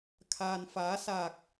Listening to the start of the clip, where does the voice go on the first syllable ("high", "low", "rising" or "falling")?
low